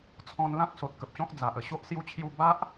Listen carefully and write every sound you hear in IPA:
t͡sʰ ɔ̃˧ n l ã˦ k̚ s o˨ t̚ k ə˨ p̚ ɕ ɔ̃˦ k̚ d͡z a˨ ʔ ə˨˩ ɕ o˦ ʔ s j u˦ t͡ɕʰ j u˥˧ b a˦ ʔ

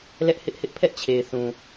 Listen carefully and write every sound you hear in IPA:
l ɛ˦ ʔ h ɪ˦ ʔ h ɪ˦ ʔ pʰ ɛ˦ ʔ t͡ɕʰ e˨ ɪ̯ θ ũ˨

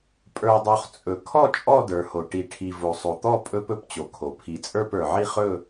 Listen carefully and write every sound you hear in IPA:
pʼ ə˞˨ dˤ o˨ χ t͡sʼ ɵ˨ kʰ ɔ˥˧ t͡ʃʼ ɔ˥˧ d ə˞˨ h o˨ ʈ i˨ ʈʰ i˨ v o˨ sˤ o˨ t̪ ɔ˥˧ pʼ ɵ˥˧ p ɵ˥˧ p t͡ɕ o˨ kʰ o˨ pʰ i˨ t͡sʼ ə˞˥˧ p ə˞˨ ʕ i˥˧ χ ɵ˥˧

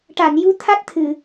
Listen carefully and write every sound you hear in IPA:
ʈ a˨˩˨ n j u˧˥ t̪ʰ a˦˥ t̚ t̪ʰ ɨ˨˩˨

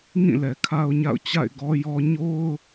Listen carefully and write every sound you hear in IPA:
ŋ ĩ˦˨ l ɛ˨ kʰ a˦ ʊ̯ ɲ a̰˦˨ ʊ̯ t͡ɕ a̰˦˨ ɪ̯ ɡ ɔ˦ j ɔ˦ ɲ o˦ ʊ̯

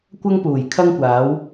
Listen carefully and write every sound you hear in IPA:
kʷ ɐ˥ ŋ p uː˨˩ j kʰ ɐ˥ ŋ kʷ aː˨˥ w

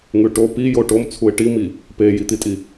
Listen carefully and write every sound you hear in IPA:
ŋ ʉ ʈ o p i j o ʈ o m t͡sʰ u ɪ̯ ʈ i m i | p e j i t̪ i tʼ i

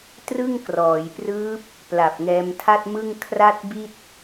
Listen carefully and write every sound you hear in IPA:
t r ɯ˥˩ ŋ k r ɔː˩˦ j p r ɯː˦˥ p̚ | p l a˨˩ p̚ ŋ ɛː˧ m tʰ a˥˩ t̚ m ɯ˥˩ ŋ kʰ r a˥˩ t̚ b i˥˩ t̚

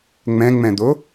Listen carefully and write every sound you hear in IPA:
ŋ͡m ɛ̃ ŋ͡m ɛ̃ d̪ o

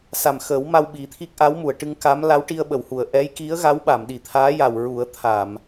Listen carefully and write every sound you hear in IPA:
s a˨˩ m x əː˨˩˦ w m a˧ w ɓ i˨˩˦ t̪ʰ i˦˥ k̚ ʔ a˧˥ w m u˨˩˨ ə̯ ʈ ɨ˧ ŋ k a˧˥ m l a˧˥ w ʈ i˧ ə̯ ɓ ə˨˩˨ w h u˨˩˨ ə̯ ʔ ɛ˧˥ j k i˧˥ ə̯ ɣ a˧˥ w ɓ a˨˩˨ m ɗ i˨˩˨ t̪ʰ aː˧˥ j a˨˩ w ɹ u˨˩˦ ə̯ t̪ʰ a˨˩˨ m

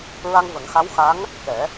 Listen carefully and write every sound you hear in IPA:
ɹ a˧ ŋ v ə˨˩˦ ŋ x a˧˥ w x a˧˥ ŋ | k ɛ˨˩˦

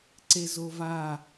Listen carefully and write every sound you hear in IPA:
ǀ e z o v a

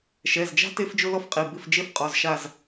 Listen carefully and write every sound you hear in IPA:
ʃ ɛ˩˧˩ z d͡ʒ a̤˥ t e˥ f d͡ʒ ʊ˥ l ɔ˥ f qʼ i˩˧˩ b ɪ˦˨ f d͡ʒ e˥ f qʼ ɔ˩˧˩ z ʃ a˦˨ z

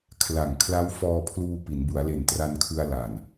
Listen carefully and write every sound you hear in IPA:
kʰ l a˨˩ ŋ kʰ l a˦˥ w f ɔː˧ pʰ l uː˧ p i˩˦ n b u˩˦ a̯ l e˨˩ n t r a˧ n kʰ ɯ˧ a̯ l a˨˩ n

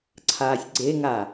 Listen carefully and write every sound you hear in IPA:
ǀʰ aː sʲ ɡ͡ǀ e ŋ a

